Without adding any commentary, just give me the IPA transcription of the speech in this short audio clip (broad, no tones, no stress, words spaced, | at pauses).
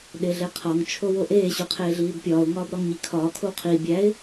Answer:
ɗeɮeqʰɒŋ t͡ʃʰowoʔeː ɕuqʰeːɮiːbpʲɒːʊ̯ ŋɒːbɾɒŋɲikʰɒː kʰowqʰiː bʲæɪ̯